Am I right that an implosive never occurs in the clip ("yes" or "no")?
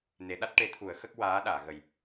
no